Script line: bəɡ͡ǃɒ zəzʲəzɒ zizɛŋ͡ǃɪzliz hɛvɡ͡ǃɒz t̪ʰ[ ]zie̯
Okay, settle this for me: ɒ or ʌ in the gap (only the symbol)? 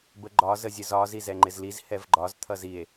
ʌ